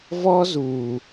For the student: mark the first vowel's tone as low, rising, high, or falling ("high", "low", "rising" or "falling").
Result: high